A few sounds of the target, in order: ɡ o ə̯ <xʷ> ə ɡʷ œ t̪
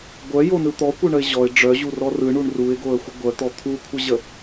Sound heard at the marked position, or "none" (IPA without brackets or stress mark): xʷ